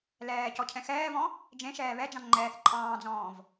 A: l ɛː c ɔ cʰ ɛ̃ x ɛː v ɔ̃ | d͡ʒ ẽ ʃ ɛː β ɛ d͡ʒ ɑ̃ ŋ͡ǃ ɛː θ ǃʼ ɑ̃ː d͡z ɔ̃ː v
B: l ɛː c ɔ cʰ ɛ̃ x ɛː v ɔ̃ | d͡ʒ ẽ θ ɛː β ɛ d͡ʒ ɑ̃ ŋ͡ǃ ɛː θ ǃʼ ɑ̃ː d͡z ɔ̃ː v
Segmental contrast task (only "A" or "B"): A